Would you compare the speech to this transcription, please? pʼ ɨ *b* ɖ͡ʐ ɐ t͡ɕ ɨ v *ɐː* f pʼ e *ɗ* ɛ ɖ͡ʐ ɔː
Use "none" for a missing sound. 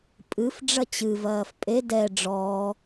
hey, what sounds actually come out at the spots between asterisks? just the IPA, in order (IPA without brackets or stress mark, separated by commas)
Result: f, ɐː, d